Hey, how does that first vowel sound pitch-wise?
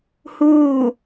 falling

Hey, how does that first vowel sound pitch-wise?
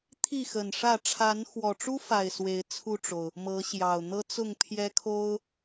falling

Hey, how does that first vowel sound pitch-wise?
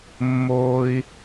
high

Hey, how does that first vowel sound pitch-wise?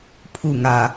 falling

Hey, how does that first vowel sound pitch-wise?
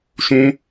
high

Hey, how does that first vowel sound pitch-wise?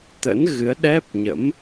rising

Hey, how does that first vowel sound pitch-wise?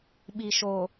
low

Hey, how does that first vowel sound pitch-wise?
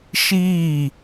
falling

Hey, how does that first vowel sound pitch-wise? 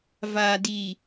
low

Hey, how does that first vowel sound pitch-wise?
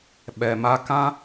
low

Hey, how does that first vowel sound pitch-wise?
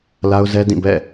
high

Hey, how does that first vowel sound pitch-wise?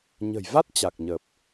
low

